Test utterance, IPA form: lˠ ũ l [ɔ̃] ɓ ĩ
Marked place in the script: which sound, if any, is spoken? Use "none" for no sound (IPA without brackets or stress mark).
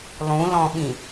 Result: ɔ̃